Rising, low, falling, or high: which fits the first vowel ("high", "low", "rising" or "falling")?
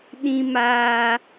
high